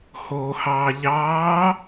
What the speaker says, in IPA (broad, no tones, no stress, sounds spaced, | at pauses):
h oː h ɑː ʎ ɑː